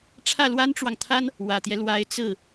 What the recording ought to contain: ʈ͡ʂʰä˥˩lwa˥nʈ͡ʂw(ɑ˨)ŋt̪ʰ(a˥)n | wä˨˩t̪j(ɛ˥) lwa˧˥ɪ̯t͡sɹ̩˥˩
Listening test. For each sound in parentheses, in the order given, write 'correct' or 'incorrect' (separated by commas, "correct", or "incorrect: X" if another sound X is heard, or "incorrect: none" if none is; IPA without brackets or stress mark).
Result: correct, correct, incorrect: ɛ˦